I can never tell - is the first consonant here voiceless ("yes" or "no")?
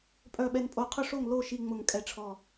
yes